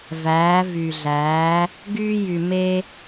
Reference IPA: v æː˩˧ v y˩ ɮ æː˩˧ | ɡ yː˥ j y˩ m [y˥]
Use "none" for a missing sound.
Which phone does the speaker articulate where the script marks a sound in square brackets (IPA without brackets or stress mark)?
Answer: e˥